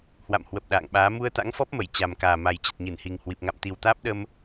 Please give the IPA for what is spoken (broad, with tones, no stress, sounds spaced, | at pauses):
h w a̰˧˨ m h w ə˨˩ p̚ ɗ a̰ː˧˨ ŋ ɓ aː˨˦ m u˧ ə̯ t̪ a̰˧˥ ŋ f ɔ˦˥ p̚ m ə˧˩ j t͡ɕ a˨˩ m k aː˨˩ m a˨˩ j t͡ɕ ə˨˩ t̚ ɲ ɨ˧˩ n h i˨˩ ŋ h w i˨˩ p̚ ŋ a̰˧˨ m t̪ i˨˩ w t̪ aː˦˥ p̚ ɗ ə˧ m